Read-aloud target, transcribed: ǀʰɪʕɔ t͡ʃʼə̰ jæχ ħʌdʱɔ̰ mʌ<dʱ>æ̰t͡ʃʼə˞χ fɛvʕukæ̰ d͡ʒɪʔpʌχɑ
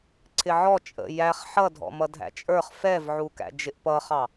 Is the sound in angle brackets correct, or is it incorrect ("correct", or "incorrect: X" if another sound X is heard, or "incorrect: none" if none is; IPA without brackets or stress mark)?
correct